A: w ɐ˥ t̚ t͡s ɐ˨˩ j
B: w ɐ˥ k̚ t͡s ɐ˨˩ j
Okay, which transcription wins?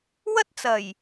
A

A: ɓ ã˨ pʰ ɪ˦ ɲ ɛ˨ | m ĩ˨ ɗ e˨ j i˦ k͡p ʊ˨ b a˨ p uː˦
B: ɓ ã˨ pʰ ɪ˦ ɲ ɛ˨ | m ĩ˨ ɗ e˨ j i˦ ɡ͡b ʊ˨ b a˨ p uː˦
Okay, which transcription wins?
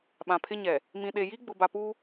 B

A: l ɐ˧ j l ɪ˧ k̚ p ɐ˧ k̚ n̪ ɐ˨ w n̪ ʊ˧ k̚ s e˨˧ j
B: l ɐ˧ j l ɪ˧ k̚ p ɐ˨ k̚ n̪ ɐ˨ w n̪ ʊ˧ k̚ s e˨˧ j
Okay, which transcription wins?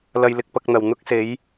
A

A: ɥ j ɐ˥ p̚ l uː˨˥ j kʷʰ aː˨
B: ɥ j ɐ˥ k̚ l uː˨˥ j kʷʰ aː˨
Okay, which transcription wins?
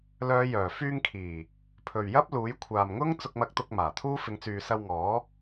A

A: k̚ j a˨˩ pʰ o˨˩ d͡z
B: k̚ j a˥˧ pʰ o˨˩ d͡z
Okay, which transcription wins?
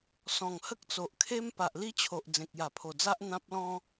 A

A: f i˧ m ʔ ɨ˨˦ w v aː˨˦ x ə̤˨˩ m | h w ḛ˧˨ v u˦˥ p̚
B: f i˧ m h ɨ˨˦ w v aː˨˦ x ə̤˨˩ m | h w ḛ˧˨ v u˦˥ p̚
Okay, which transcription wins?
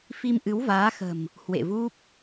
A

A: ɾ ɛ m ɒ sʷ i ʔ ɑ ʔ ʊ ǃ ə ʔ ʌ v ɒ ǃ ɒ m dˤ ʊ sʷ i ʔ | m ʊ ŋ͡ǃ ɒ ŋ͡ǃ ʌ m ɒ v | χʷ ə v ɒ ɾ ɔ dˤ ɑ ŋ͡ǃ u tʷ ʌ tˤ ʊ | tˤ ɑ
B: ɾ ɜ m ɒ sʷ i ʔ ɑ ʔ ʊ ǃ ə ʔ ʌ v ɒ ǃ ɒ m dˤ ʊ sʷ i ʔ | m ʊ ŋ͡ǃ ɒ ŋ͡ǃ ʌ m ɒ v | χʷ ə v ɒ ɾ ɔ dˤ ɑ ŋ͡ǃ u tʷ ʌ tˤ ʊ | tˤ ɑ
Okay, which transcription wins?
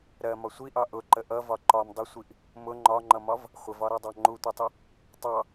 B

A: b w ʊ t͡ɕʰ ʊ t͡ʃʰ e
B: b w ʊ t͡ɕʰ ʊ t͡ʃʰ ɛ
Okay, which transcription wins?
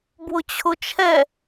B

